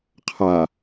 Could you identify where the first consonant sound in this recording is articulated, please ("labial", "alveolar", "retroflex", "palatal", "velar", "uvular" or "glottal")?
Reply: uvular